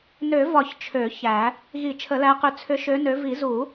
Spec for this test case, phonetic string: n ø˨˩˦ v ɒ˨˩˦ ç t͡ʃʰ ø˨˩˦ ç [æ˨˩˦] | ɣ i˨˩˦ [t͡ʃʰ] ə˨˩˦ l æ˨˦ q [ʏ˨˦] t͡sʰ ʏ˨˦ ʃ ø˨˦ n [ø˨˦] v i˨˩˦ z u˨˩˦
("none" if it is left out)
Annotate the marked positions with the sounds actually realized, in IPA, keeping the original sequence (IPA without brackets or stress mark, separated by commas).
æ˨˩˦, t͡ʃʰ, ʏ˨˦, ø˨˦